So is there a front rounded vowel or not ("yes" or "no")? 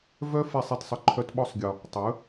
yes